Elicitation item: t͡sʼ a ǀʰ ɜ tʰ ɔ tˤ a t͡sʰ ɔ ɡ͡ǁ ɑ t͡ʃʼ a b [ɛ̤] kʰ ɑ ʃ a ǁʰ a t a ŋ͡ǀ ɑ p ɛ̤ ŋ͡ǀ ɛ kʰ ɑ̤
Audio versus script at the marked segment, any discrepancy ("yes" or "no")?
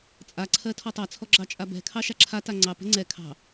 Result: no